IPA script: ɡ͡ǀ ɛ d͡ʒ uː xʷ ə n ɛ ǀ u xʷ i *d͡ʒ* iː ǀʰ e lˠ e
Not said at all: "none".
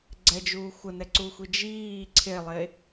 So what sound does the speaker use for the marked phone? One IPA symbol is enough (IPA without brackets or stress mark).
d͡ʒ